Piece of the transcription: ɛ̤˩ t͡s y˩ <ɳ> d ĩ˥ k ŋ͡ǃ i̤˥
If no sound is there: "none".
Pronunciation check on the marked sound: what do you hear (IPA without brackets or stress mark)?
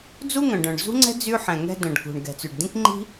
ɖ